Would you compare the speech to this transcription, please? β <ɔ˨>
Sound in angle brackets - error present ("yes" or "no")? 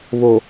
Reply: yes